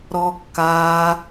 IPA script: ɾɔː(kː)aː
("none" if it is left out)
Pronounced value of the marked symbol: kː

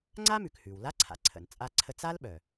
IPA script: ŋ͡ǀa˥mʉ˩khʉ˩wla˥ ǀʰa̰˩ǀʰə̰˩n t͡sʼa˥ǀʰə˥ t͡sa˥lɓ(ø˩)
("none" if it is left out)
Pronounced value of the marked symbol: œ˩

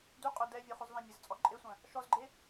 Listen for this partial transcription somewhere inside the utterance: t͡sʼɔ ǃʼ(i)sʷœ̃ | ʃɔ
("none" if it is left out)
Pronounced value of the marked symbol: e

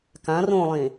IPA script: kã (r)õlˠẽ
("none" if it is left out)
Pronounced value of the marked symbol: r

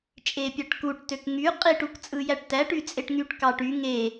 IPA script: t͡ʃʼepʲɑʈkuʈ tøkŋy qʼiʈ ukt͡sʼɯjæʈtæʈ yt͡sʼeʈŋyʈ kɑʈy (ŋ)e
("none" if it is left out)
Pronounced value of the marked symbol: ŋ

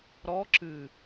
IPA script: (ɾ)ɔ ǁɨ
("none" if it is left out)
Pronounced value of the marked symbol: ɾ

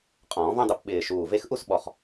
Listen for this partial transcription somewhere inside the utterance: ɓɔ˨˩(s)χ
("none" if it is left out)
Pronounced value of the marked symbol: none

